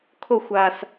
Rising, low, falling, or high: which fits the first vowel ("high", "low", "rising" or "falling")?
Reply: falling